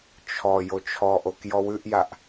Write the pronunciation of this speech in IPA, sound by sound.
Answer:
t͡ʃʰ ɔ j o t͡ʃʰ ɔ ʔ o k j ɔ w ʉ ʔ j a ʔ

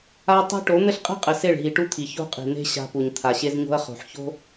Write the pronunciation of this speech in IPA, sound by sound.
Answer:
a˦ tˤ a̤˦ ʈ o˨˦ n̪ ɘ˦ ɬ qʼ e̤˦ qʼ ɘ˨ s e˦˨ ɭ ɦ i˨ ʈ u˦ t̪ʰ i˨ ç o̤˦ qʼ i̤˨ n̪ e̤˦ ɕ a̤˦ p u˨ ɲ t̪ʰ a˨ ɕ e˦ z ɲ o̤˦ ɐ̯ χ o̤˨ ħ ç o̤˦

